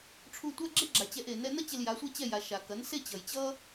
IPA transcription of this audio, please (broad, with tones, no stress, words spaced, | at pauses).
ʈ͡ʂʰu˧tʷa˥ɡ͡ǁe˥ɡ͡ǁa˩ t͡ɕɛ˧ʔe˩ nɛ˧nʌ˥ t͡ɕe˧lja˩˥sʷɛ˥ t͡ɕɛ˥˩ ja˩ ʃa˩kɐ˩˥nse˥ t͡ɕʌ˩jt͡ɕʌ˥